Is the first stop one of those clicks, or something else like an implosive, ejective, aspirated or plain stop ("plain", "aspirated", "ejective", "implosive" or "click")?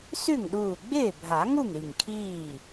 implosive